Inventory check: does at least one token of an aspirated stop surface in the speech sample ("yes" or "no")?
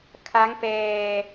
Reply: yes